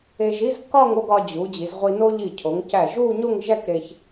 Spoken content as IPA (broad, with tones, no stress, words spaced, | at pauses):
e˧ʒi˥z kɒ˥˧ŋ o˥˧ɡɒ˧d͡ʑu˩˧ d͡ʑi˩˧zʁʷi˧no˥ ʎi˧˩cʰo˩˧ŋ cæ˧˩ʒu˥˧ɲo˥˧ŋ ʒæ˥˧kɾe˧ç